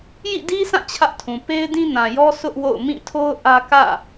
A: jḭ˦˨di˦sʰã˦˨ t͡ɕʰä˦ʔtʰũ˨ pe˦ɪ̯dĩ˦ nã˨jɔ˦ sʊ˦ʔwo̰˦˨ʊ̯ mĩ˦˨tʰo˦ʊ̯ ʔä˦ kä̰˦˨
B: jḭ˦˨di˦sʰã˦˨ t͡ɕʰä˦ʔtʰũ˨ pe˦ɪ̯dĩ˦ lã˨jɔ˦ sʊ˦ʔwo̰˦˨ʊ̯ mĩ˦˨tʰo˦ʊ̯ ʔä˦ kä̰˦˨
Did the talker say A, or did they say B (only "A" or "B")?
A